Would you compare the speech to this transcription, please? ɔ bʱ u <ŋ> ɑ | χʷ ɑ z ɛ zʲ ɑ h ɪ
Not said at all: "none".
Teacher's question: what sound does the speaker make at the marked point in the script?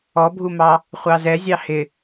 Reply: m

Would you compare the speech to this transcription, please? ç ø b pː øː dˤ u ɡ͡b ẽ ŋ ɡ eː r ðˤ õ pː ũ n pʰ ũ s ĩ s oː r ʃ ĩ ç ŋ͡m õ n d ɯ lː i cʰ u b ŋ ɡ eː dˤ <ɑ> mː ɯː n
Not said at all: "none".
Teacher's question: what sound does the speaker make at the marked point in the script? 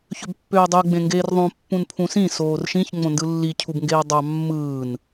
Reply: ɑ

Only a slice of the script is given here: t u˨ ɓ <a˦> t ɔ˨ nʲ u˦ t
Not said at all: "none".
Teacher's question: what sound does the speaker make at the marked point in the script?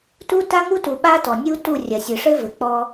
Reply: a˦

